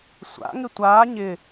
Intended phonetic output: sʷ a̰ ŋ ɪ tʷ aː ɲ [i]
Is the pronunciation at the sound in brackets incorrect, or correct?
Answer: incorrect